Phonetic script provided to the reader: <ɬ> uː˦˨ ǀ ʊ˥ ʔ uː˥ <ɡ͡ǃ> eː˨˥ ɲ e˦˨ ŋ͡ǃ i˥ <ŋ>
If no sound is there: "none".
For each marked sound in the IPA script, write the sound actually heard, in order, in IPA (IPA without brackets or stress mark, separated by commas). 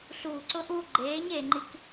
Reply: ɬ, ɡ͡ǃ, k